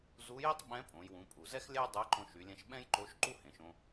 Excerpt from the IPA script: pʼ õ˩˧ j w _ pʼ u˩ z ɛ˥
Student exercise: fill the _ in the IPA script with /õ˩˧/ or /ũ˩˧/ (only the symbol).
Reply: ũ˩˧